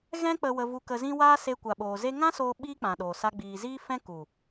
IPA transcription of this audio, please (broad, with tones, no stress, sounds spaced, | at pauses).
ɣ ɛ̃˦ k͡p ə˧ w ə˧ v u˧ k ə˧ z ĩ˦ w aː˦ s e˧ kʷ a˨ ɓ oː˨ z e˦ ŋ ã˦ s oː˧ ɓ iː˦ k͡p ã˨ ɗ oː˨ s a˧ ɡ͡b iː˨ z iː˦ f ɛ̃˦ k u˨